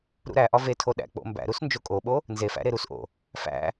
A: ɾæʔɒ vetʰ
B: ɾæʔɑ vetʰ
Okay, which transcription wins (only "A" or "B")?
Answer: A